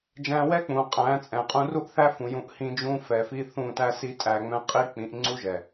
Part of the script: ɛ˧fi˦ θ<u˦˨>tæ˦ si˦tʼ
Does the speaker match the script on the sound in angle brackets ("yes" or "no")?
no